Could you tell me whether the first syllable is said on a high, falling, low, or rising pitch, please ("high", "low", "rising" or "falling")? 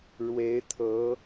rising